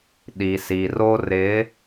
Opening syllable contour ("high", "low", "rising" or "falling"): low